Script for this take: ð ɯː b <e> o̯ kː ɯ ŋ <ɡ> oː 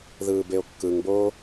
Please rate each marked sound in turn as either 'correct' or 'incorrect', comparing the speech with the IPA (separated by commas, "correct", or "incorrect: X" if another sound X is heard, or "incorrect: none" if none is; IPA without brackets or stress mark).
correct, incorrect: b